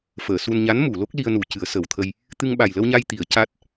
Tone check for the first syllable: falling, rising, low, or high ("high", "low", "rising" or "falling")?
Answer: low